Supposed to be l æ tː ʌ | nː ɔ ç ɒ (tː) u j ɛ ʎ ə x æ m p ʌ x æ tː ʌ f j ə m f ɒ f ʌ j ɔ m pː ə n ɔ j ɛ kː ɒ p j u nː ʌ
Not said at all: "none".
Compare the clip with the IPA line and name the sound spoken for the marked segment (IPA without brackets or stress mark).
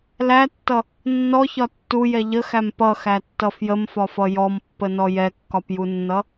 tː